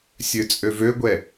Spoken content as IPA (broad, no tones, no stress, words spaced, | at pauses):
sʲøt͡sʼøvøɡʷɛ